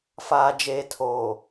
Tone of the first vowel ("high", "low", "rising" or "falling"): low